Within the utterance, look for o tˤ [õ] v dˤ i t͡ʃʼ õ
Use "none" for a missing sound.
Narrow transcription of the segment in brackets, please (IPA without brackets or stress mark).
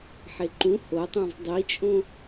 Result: ũ